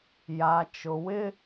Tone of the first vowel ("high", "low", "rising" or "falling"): low